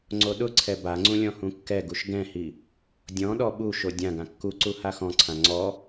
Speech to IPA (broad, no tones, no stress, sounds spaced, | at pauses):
ŋ͡ǀ o ɗ ʊ ǀʰ ɛ b a ŋ͡ǀ ũ lʲ ɔ̃ h ũ kː ɛ ɡ u ʃ ɡ ɛ̃ h i | dʲ ɔ̃ ɗ ɔ ɓ u ʃ o dʲ ã ɡ ã kː u ǀ u h a x ɔ̃ ǀʰ ã ŋ͡ǀ ɔ